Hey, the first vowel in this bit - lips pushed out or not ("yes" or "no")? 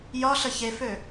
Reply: yes